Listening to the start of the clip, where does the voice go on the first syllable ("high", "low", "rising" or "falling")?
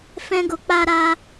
high